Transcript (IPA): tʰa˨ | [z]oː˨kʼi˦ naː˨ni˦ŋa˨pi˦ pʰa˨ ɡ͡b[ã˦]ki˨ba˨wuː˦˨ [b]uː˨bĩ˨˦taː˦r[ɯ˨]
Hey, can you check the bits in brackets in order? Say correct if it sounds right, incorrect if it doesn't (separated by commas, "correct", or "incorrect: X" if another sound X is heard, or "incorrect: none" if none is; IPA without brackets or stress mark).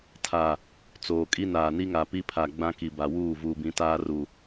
incorrect: t͡s, correct, incorrect: v, incorrect: u˨